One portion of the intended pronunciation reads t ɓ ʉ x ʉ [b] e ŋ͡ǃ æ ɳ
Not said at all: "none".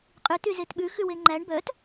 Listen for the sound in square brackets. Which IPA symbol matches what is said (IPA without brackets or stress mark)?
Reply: w